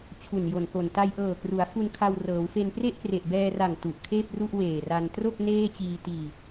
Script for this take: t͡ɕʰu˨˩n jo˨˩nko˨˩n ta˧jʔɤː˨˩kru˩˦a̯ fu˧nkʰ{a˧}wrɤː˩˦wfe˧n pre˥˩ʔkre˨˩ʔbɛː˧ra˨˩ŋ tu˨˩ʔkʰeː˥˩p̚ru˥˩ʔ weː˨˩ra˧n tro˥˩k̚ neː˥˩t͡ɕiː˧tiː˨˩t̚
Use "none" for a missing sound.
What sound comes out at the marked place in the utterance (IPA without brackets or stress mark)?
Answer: a˧